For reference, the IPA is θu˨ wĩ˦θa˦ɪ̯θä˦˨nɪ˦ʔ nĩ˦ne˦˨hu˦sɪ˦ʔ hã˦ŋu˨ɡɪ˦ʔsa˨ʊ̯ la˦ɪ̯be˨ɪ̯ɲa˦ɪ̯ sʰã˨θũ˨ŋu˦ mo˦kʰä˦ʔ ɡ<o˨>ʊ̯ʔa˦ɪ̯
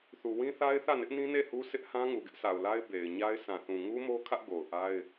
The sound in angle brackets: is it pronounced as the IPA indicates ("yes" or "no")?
yes